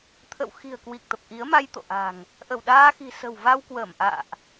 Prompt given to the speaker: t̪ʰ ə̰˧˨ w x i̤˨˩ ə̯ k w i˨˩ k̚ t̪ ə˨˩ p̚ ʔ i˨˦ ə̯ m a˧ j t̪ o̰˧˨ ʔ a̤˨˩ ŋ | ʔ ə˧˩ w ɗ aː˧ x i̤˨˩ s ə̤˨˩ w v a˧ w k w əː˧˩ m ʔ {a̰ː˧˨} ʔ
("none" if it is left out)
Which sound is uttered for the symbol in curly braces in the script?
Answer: a̰ː˧˨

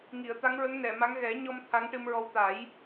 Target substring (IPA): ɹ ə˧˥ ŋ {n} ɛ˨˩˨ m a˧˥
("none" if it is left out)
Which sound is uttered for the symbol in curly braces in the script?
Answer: n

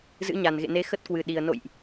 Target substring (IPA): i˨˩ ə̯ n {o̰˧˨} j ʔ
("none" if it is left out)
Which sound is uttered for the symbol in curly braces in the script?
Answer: o̰˧˨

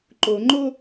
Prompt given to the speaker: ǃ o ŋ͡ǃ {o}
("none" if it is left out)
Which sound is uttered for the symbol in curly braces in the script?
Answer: o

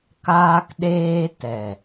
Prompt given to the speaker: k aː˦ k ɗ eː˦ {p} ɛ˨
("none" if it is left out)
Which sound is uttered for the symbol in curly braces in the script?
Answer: t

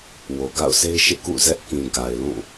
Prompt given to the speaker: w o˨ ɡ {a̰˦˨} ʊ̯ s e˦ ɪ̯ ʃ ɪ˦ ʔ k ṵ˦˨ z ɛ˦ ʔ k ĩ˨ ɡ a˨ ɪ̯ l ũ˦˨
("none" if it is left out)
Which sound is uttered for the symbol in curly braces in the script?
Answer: a̰˦˨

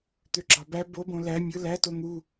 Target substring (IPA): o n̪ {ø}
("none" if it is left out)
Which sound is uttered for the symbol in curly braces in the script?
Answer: u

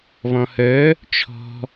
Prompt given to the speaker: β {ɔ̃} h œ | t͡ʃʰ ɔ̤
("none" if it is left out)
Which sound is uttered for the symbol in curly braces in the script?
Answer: ɔ̃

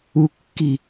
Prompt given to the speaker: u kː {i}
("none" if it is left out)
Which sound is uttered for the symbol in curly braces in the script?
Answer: i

